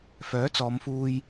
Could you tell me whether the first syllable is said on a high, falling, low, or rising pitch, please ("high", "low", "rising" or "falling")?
rising